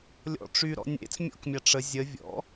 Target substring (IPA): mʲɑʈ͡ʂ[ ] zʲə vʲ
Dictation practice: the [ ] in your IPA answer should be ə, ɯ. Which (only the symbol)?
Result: ə